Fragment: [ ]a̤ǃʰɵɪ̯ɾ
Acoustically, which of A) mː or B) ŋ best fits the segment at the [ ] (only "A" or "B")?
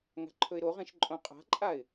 B